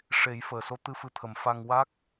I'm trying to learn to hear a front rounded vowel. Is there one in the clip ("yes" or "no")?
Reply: no